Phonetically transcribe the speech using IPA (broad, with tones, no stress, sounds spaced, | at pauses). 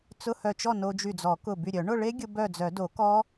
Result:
t͡s ʊ˧˥˧ h œ˧˩ t͡ʃ ɔ˥˨ n o˧ d͡ʒ y˧˩ d͡z ɔ˨˩˦ k ʊ˧˩ b y˧˩ ɾʲ œ˨˩˦ ɳ ʊ˥˨ ɭ e˦˥ ɡʲ ʊ˧ b œ˥˨ d͡z œ˨˩˦ d o˨˩˦ k ɔ˦˥